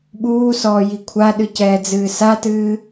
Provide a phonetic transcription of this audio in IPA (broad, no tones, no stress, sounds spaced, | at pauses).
ɓ uː s ɔː j i kʷʰ a ɗ ɨ c ɛː d͡z ɨː s a t ɨː